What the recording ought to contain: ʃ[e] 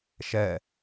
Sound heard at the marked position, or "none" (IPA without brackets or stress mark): ɛ